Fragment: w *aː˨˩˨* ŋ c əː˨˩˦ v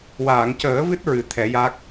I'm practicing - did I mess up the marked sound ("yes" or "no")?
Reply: no